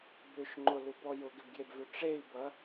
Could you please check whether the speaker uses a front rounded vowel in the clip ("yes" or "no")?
yes